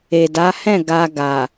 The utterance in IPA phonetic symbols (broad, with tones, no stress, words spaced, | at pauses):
e˨da˨˦hɛ̃˦˨ ɡa˧ɡa˨